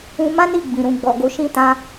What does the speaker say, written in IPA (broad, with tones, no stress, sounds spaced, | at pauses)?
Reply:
ũ˦ m ã˦ n i˦˨ ɡ͡b ĩ˨ ɾ ũ˨ ɡ͡b ɔ˨ ɡ o˨˦ ʃ ĩ˦ t ã˦